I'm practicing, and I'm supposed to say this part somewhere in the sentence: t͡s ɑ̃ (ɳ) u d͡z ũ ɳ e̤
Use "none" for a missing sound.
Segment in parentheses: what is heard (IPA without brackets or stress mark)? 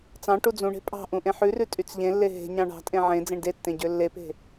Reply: ʈ